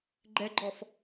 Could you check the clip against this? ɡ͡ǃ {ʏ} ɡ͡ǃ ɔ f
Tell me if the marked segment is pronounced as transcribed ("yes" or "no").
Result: no